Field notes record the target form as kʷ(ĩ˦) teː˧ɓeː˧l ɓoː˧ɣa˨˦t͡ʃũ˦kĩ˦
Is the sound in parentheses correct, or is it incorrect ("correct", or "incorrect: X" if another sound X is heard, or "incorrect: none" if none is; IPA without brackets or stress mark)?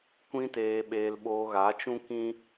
correct